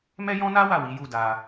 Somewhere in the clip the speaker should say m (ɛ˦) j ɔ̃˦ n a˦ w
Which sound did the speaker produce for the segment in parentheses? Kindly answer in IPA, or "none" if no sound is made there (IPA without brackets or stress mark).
ɛ˦